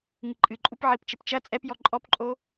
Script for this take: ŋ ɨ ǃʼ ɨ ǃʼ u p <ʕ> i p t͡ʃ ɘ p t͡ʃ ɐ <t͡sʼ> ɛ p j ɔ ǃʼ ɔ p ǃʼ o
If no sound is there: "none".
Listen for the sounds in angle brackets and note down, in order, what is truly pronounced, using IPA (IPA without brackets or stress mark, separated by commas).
ʕ, t͡sʼ